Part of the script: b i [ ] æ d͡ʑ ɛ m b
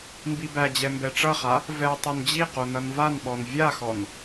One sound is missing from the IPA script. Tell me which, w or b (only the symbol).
b